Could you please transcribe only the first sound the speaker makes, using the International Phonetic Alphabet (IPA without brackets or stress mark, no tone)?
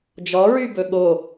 d͡ʒ